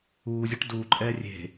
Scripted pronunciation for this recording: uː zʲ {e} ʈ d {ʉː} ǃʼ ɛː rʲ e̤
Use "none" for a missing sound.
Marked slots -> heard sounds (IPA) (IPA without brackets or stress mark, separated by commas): e, uː